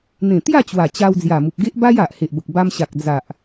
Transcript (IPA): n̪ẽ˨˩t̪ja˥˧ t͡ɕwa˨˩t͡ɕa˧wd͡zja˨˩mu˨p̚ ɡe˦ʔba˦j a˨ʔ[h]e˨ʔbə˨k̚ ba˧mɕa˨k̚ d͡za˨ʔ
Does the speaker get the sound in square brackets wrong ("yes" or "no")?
no